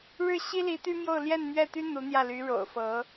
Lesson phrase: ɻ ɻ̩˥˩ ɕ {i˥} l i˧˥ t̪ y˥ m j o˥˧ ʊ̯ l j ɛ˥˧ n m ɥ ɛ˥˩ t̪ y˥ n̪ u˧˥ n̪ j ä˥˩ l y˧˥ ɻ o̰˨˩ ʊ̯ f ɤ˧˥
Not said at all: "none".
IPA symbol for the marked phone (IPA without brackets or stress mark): i˥